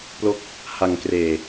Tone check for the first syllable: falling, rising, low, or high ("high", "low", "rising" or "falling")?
falling